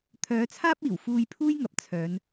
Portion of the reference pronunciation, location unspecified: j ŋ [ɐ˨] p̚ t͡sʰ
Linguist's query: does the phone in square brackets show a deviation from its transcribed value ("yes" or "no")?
no